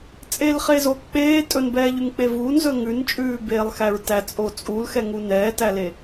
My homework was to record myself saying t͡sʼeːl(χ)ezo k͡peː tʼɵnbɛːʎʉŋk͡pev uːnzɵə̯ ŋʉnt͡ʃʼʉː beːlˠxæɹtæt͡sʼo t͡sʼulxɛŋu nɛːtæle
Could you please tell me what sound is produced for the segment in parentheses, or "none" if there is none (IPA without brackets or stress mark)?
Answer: χ